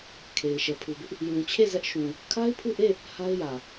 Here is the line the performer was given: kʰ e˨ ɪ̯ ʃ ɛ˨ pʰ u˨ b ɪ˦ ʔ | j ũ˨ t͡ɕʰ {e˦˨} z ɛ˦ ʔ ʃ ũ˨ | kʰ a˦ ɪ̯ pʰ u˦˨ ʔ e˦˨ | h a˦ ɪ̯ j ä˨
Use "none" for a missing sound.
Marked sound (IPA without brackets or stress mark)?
e˦˨